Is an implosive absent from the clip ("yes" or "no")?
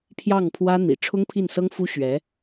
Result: yes